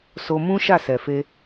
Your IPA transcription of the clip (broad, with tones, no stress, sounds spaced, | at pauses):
s o˧ m ũ˦ ʃ a˦˨ s ɛ˨ f e˧